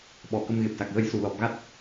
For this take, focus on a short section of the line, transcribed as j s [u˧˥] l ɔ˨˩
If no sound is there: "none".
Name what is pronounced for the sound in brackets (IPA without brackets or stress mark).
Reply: u˨˩